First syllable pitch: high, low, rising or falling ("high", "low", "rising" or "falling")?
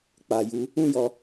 low